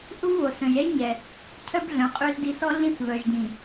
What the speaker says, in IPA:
ʔ u˦ v β o˨ s œ̃˨ ʒ ɛ˦ ʒ ɲ ɛ˨ | cʰ œ˦ b ɮ œ̃˨ qʼ ø˦ z d i˦˨ s ɔ˦ ɮ ĩ˦ θ v œ˨ ʒ d ĩ˨

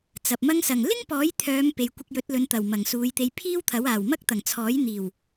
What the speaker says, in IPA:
t͡s ɐ˨ p̚ m ɐ˧ ŋ s ɐ˨˩ ŋ l ɪ˥ ŋ p ɔː˨˥ j t̪ʰ œː˨˧ m p e˨ j kʷ ɪ˧ k̚ j ɵ˨˥ t̚ l ɵ˨˧ n t̪ ɐ˨˩ w m ɐ˨˩ ŋ s uː˨˧ j t̪ e˧ j pʰ iː˥ w t̪ʰ ɐ˨˥ w aː˨˩ w m ɐ˥ k̚ t̪ ɐ˨˩ ŋ t͡sʰ ɔː˨˥ j n̪ iː˨˩ w

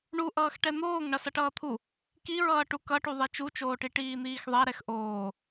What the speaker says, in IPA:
ɳ u ʔ ʌː x ʈ ɛ n̪ oː ŋ ɳ ʌ s ʌ ʈ ʌː t̪ʰ u | k i ɹ ʌː ʈ u k ʌ ʈ u ðˤ e t͡ʃ u t͡ʃ oː ʈ i ʈ iː n̪ iː x ðˤ ɛ ɾ ɛ x ʔ oː

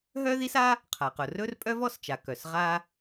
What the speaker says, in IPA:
ɦ œ˥ ð i˥ s a˥ | qʰ a˩ q ʊ˩ r ɵ˥ r pʼ œ˥ v ɔ˥ s t͡ʃ a˩ k œ˩ s ʁ a˧

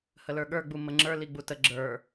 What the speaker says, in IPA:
h ə l ə˞ ɠ ə˞ ɡ͡b u m ə ŋ͡ǁ ə˞ l i ɡ͡b u t ə ɡ͡ǁ ə˞

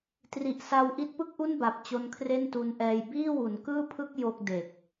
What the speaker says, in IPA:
t r i˨˩ ʔ s a˧ w ʔ i˦˥ t̚ p ɯ˥˩ k̚ ʔ u˥˩ n b a˨˩ p̚ t͡ɕ o˧ n kʰ r e˥˩ n t u˧ n ʔ ɛː˧ j b iː˥˩ w u˩˦ n k ɯː˥˩ pʰ ɯ˥˩ k̚ j o˥˩ k̚ d e˨˩ k̚

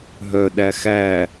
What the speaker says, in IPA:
ɦ œ ɗ æ x æ

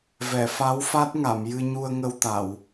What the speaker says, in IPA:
v ɛ˨˩˨ f a˧˥ w f a˦˥ t̚ ŋ a˨˩˨ m j ɨ˧ ɲ u˧ ə̯ ŋ ə˧ w t̪ a˨˩˨ w

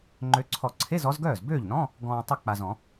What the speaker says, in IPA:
ŋ͡ǃ ø˨˦ ǀʰ ɔ˨˩˦ ǀʰ e˧˥˧ z ɔ˨˦ z ɡ œː˥˩ z b øː˥˩ ʎ n ɔ̃˧˥˧ | ɡ ɔ̃ː˨ tˤ ə˥˩ k͡p a˨ z ɔ̃˨˩˦

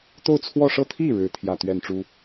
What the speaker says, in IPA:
t̪ o˥˧ ʊ̯ t͡sʰ w ɔ˥˩ ʂ ɤ˥ t̪ʰ i˥˩ ɻ ɻ̩˥ t̪ʰ j ä˥˧ t̪ ɥ ɛ˥˩ n ʈ͡ʂ u˥

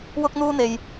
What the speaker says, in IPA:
w ʊ˥ k̚ n̪ uː˥ n̪ e˧ j

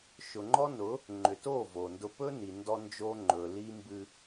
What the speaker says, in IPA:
ʃ ʊ˨ ŋ͡ǃ ɔ˦ n ʊ˨˦ | ŋ͡ǃ ʏ˨ t o˦˨ v o˨ n d ʊ˦ p ɵ˦ n i˨ n d ɔ˦ n d͡ʒ o˦ ŋ͡ǃ ɵ˨ l i˦ m b ɨ˦

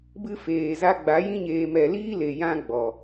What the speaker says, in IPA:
b ɨ˦ f eː˨ z a˦ ɡ͡b a˨˦ j ĩ˦ ɲ eː˧ m ɛ˨ l iː˦ l e˨ j ã˦ ɡ͡b ɔ˨

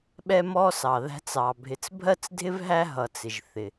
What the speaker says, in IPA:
ɓ ɛ˦ m ɔ˦ s ɑ˩ ð æ̤˦ t͡s ɑ˩ bʱ ɪ˨ t͡s bʱ ɜ˥ t͡s dʱ ɪ˥ v ɦ æ˦ ɦ ʌ˩ t͡s ɪ˩ ʒ θ ɪ˩

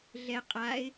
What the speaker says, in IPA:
ɮ ɛ qʼ a ɪ̯

